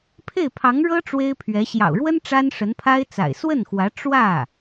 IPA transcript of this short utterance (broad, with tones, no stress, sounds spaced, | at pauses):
pʰ e˥˩ ɪ̯ pʰ ɑ˧˥ ŋ ɻ ɤ˥ ʈ͡ʂ w e˥ ɪ̯ pʰ ɥ ɛ˧˥ ɕ j ɑ̰˨˩ ʊ̯ ɻ w ə˥ n ʈ͡ʂ a˥ n ʂ ə˧˥ n pʰ a˥ ɪ̯ t͡s a̰˨˩ ɪ̯ s w ə˥˩ n x w ä˧˥ ʈ͡ʂ w ä˥˩